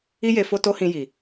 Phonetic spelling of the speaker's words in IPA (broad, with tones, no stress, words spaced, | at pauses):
i˦je˧ fo˦to˦hĩ˧ ji˨